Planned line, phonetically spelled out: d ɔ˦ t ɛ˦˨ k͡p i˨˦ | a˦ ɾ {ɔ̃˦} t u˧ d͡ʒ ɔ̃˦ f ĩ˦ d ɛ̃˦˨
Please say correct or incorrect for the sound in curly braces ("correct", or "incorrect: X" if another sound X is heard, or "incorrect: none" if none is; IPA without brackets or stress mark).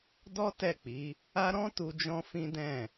correct